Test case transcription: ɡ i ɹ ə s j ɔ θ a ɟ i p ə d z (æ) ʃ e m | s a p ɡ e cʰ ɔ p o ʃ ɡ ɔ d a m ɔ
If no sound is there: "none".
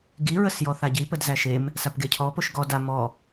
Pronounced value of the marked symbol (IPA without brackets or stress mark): æ